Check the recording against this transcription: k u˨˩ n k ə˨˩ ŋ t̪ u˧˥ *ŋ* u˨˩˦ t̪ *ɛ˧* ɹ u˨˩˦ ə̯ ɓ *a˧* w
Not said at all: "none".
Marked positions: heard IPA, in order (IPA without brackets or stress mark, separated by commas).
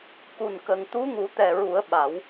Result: ŋ, ɛ˨˩, a˨˩˦